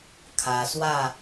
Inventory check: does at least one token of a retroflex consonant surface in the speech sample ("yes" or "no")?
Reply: no